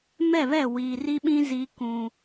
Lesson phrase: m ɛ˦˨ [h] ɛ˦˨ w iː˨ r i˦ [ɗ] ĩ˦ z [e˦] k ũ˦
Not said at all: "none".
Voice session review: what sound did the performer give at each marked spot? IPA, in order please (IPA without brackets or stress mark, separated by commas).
β, ɓ, i˦